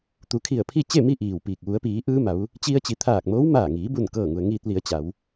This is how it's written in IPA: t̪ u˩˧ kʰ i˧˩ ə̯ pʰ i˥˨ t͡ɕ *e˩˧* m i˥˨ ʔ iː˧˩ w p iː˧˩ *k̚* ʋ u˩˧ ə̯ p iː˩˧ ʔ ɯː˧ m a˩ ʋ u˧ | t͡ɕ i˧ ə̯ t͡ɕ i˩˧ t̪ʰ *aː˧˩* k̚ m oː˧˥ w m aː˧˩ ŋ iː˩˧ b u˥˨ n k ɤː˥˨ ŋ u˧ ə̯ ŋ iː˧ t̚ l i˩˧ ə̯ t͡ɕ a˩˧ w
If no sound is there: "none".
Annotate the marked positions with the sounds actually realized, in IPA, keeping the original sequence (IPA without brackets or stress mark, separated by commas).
e˥˨, k̚, aː˧˩